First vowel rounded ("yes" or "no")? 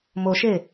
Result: yes